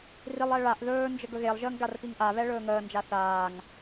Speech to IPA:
rilˠɛ ɭaʔ ðɵːnd͡ʒə ɡɵɣelˠʒəːŋ ɡarpiŋʔaβɛ ɭɵːŋəːnd͡ʒa θaːŋ

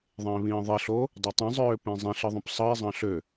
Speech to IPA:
ðˤẽːβĩːðˤiɬoː | dˤøtˤĩzˤøː pẽzˤẽɬɯ ðˤõpsˤɯe̯zˤɑ̃ ɬø

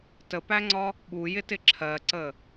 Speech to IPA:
təpæŋ͡ǀɒ | ɓujɪtɪ ǁʰɜǀə

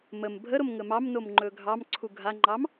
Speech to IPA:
məm bʱəɾomŋə mɑmnomŋ͡ǃɵ ɡʱɑmǀʰu ɡʱaŋ͡ǃɑm

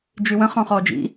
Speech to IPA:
d͡ʒywə̃ χɔ̃χɔd͡ʒḭ

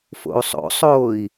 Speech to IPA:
fo̰u̯sˤo̰sˤoːi̯

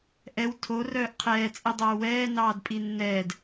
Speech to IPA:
ʔɛw tʰo rœːʔqʰɛː t͡sʼidˤoːwɛː nɑːdpʼinːɛːd

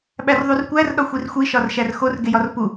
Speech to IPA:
ɓærðˤurkʷær ɗɒxʷirxʷi ʃɒrʃærxor ɡejɒrpu

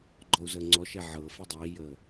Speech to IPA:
ɡ͡ǃɔu̯zəːŋ͡ǀɔʃɛ ʕɤ fidˤiːjəː

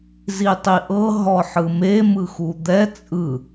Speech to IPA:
zitˤiʔɤ ɦɔħɯme mɯxud̪ɛ t͡sʼɯ

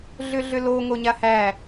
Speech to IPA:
ɮʏɮʏlo ŋoɲahæ

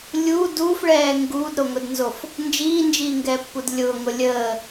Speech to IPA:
lʲuː duːfɭɛː ŋɡuːdɾoŋʊdnzof | nd͡ʒiːnd͡ʒiːŋɡɛːpːud lʲʊːŋʊ lʲəː

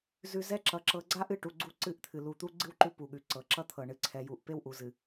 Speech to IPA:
zʉ˨ zɛ˦ ǁʌ˨ ǁɤ˨ɡ͡ǀa˦ʔɨ˦˨ʈu˨ ɡ͡ǀu˦ǀɨ˦˨ʔt̪ʰɨ˨ lu˨ t̪u˦ɡ͡ǀɨ˦wǃʉ˦ pu˨ɠʉ˨ ǀɤ˨ǁʌ˦t̪ʰɤ˨ ɳɨ˨ǀʰɛ˨ju˨ʔ pe˦wʔu˨zɨ˨

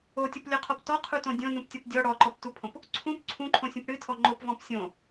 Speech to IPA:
otʲoplʲɔqʰɔp tɔqʰutõ dʲõnũptʲɔp dʲɔ ɽɔǃɔptupʰõp | ǀʰũp ǀʰũǃʰõsʲũp ɽɨtʰɔ ŋ͡ǃopvɔ̃p sʲõ

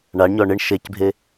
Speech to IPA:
ɳaɳɲɔ ɳɪɳ ʃecbʱe

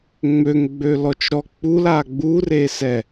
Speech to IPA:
ŋ͡møŋɡ͡bø lɔt͡ʃɾɔ k͡pul aɡ͡buresɛ

